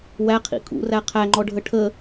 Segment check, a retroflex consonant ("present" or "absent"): present